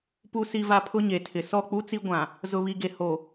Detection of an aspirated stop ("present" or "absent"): present